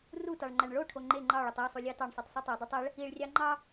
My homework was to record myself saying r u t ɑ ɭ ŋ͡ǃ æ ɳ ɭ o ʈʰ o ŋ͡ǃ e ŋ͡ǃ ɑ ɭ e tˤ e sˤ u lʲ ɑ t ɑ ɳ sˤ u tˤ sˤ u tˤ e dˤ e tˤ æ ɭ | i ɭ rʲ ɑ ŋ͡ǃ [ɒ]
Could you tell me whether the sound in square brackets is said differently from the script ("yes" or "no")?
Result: yes